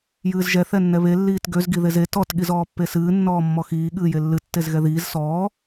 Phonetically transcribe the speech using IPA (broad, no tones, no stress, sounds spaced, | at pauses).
j ɨː z ʒ ɛ θ ɛ nː ɛ β e lː iː t ɡ ø z ɡ i ð e z e t ɔ t ɠ i z ɔː pː e s ɨː nː ɔː mː ɔ x iː ɠ ɨː j e lː ɨ tː e z ɣ ɛ ð iː z s ɔː